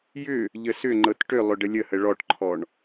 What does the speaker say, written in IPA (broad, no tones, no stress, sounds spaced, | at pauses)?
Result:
j ʏ | ʎ ə s ʏ ŋ͡ǃ ɤ t ʈ ʏ lˠ ʏ ɖ ə lʲ ə h ə ɭ ɔ ʈ ǃʰ ɔ ɳ